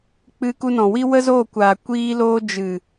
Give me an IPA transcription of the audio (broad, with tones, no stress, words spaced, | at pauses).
k͡pɨ˧ku˧nɔ̃˨wi˦ wə˦zoː˦˨kʷaː˨ kʷiː˧loː˧ d͡ʒɨ˨